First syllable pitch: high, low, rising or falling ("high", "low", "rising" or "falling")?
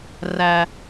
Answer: low